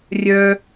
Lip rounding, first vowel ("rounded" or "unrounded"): rounded